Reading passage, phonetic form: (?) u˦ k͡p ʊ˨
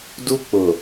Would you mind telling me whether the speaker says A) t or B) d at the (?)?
B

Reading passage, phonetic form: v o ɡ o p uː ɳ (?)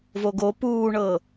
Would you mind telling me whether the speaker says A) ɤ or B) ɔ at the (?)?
A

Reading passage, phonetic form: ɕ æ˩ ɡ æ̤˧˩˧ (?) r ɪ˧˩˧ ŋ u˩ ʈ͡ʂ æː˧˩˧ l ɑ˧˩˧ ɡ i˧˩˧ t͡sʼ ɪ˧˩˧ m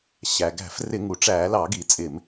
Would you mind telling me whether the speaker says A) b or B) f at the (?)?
B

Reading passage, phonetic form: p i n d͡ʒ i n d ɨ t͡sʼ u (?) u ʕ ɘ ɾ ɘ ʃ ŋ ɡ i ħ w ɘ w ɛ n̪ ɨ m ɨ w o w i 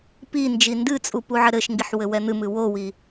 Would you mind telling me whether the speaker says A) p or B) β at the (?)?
A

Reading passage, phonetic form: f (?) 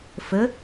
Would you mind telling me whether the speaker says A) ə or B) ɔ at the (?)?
A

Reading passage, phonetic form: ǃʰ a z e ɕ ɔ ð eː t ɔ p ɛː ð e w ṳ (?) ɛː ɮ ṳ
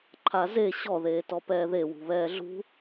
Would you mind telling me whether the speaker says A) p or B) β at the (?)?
B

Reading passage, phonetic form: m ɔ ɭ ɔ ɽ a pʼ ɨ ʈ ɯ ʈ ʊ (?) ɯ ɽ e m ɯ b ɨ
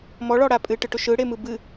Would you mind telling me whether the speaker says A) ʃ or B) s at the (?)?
A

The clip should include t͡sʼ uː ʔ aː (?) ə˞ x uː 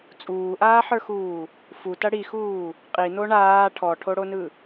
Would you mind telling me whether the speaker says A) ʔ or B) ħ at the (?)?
B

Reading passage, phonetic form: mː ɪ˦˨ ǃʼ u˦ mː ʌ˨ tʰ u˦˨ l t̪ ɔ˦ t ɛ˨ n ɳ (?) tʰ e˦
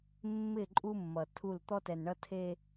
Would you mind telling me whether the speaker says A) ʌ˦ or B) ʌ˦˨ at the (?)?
A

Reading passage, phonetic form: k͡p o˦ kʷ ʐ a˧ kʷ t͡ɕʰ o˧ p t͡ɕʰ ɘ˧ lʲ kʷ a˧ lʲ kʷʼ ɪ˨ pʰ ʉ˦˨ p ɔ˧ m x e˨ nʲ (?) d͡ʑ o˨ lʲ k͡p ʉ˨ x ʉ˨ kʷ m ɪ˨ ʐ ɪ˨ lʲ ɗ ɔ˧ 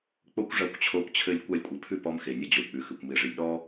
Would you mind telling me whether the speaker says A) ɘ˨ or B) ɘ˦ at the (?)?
B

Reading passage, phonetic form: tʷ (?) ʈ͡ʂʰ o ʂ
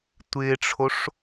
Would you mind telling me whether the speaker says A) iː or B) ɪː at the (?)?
B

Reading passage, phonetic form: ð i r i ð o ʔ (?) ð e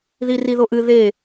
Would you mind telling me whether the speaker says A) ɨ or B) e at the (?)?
A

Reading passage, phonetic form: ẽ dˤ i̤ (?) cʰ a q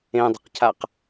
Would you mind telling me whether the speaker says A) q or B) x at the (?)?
A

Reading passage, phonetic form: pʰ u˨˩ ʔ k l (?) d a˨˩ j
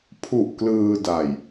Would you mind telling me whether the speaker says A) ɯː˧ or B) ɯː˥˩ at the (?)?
A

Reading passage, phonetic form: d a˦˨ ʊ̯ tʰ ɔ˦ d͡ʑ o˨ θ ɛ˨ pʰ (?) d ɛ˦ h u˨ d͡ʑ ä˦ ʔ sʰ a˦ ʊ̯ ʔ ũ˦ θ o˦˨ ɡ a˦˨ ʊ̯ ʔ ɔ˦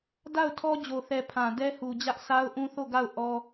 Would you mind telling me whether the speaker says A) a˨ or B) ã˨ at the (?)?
B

